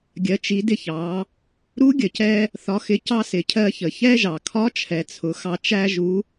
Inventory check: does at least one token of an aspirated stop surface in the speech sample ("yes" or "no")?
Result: yes